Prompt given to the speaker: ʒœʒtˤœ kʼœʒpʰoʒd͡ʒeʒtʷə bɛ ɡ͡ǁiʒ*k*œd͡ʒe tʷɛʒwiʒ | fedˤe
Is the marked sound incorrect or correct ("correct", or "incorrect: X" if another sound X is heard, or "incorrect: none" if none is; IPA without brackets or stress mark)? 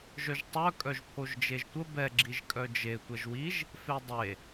incorrect: kʼ